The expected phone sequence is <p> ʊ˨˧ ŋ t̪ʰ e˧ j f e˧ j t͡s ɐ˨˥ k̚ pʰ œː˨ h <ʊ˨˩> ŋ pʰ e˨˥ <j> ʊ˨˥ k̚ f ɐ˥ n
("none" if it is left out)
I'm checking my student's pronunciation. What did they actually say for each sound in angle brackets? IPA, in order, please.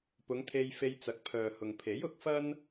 p, ʊ˨, j

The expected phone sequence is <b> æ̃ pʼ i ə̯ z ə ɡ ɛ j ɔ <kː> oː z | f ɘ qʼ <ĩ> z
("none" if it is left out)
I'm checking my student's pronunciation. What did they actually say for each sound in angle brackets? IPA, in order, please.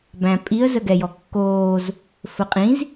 b, kː, ĩ

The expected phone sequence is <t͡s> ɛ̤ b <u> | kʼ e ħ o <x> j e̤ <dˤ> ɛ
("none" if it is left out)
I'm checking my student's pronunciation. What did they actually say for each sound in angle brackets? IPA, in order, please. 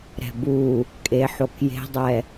ɾ, u, k, dˤ

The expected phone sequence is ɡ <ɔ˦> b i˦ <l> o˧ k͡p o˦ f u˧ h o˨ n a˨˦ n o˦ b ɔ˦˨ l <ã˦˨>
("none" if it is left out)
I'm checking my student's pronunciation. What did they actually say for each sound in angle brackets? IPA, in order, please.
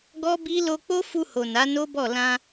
ɔ˦, l, ã˧

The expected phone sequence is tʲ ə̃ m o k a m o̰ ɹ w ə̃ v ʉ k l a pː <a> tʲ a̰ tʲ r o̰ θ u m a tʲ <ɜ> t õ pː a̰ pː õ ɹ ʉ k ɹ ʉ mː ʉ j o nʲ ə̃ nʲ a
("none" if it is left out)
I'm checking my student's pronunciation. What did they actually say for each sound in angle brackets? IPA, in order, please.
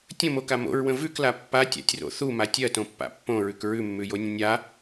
a, ɜ

